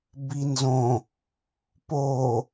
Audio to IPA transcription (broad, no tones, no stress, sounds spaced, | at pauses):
b i n z õ | p o